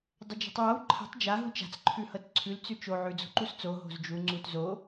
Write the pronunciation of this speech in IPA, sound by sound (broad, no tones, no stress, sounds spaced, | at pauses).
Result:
dˤ ə d͡ʒ o̤ tˤ w a w ǃʰ a̤ tˤ d͡ʒ a ɦ u t͡ʃ a̤ t͡s ǃʰ ʉ h ɤ t ǀʰ ʉ l t͡s ʉ t͡ʃ o ʕ ʉ d͡z o̤ ǃ u s t͡s o ɦ o̤ z d͡ʒ u ŋ͡ǀ u t z o